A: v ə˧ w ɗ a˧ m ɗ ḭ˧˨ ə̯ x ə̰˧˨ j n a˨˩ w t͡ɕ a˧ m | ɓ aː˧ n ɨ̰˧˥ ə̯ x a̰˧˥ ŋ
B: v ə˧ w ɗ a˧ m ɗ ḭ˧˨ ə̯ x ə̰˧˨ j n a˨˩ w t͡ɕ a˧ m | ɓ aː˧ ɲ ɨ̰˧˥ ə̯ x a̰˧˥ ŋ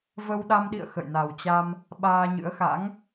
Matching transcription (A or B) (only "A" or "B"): B